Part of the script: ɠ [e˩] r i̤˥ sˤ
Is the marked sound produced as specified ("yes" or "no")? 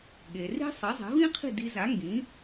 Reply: yes